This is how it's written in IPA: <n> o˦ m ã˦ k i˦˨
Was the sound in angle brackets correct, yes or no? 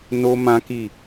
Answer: yes